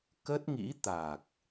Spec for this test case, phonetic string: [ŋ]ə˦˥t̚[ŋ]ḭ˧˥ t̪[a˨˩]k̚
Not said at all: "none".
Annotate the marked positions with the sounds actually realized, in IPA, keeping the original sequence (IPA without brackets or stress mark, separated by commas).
k, ŋ, a˨˩